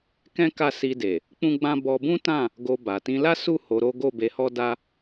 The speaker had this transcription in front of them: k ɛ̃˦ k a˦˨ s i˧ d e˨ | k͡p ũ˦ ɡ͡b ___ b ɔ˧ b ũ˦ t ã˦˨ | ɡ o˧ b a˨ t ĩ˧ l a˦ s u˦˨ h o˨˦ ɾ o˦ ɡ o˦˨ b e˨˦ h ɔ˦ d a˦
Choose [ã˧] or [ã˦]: ã˦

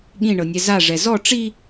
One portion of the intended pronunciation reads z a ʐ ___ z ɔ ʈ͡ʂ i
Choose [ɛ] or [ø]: ɛ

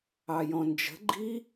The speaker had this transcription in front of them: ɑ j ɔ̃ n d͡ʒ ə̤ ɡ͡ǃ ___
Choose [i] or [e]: i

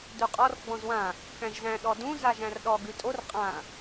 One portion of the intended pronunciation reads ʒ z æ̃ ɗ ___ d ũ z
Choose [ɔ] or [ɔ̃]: ɔ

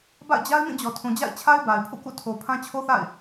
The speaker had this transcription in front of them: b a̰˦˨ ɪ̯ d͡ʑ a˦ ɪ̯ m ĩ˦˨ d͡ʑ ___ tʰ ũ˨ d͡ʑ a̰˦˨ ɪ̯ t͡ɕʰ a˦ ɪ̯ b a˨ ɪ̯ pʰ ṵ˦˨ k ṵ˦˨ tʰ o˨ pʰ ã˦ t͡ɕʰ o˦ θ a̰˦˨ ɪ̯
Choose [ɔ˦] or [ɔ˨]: ɔ˨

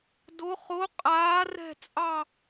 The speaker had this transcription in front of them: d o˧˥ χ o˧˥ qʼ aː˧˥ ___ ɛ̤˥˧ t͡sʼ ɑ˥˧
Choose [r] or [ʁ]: r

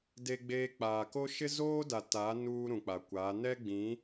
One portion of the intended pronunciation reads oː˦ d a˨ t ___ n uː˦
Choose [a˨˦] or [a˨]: a˨˦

